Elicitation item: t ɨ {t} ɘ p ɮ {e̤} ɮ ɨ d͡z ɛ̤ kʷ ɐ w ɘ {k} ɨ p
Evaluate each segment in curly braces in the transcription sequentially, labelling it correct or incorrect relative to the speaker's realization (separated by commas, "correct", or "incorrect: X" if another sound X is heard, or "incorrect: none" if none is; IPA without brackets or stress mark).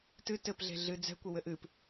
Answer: correct, correct, incorrect: ʔ